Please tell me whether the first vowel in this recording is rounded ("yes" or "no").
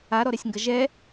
no